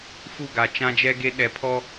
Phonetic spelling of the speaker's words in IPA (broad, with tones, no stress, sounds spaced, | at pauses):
f u˦˨ ɡ a˨ t͡ʃ ã˦ d͡ʒ ɛ˦ ɡ e˦ ɗ ɛ˨ pʰ ɔ˦